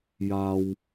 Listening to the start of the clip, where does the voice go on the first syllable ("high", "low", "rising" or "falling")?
low